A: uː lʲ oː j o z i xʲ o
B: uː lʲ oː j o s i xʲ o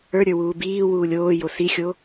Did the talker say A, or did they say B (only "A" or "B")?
B